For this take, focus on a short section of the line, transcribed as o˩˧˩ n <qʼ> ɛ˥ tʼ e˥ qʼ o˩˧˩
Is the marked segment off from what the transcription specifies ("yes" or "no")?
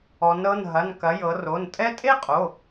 yes